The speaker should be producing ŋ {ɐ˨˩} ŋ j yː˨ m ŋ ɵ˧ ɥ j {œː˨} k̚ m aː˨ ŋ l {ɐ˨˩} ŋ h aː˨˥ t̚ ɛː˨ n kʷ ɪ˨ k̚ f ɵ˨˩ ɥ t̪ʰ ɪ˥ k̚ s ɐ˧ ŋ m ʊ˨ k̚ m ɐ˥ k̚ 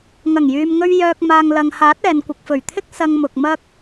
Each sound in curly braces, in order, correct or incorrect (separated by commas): correct, incorrect, incorrect